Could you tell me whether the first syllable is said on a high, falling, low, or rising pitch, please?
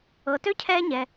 low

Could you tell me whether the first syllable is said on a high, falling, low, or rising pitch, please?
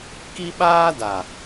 high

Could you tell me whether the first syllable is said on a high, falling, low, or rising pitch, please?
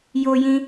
high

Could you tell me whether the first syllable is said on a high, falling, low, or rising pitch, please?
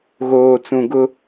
low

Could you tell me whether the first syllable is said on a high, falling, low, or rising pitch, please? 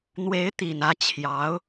rising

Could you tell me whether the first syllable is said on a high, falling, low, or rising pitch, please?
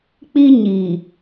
high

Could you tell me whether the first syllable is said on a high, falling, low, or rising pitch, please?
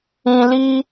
high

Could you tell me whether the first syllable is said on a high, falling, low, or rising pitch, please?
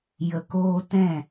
low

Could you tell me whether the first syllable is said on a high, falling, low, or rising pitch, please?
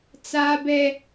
high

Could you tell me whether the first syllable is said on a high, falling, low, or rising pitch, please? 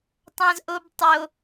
low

